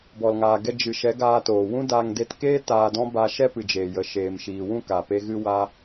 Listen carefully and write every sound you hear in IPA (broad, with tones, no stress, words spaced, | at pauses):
bɔ˨lŋaː˨ ɡɛ˧ d͡ʒɨ˨ʃɛ˨˦ ɡaː˧toː˨ wũ˦daː˧ŋ de˧tkeː˦ taː˧dɔ̃˦ ba˧ʃɛ˦ pɨ˨d͡ʒeː˨jə˨ ʃeː˨mʃiː˨wũ˦˨ ka˨pe˧ ɣɨ˧wa˧